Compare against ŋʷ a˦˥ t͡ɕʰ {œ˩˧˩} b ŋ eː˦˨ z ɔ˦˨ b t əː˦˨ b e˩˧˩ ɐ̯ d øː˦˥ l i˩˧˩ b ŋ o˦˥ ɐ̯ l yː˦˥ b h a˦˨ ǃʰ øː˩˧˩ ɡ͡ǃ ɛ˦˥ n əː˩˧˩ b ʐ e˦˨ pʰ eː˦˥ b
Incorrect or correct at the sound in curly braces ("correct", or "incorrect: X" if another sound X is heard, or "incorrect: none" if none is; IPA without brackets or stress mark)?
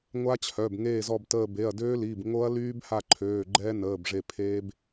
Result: correct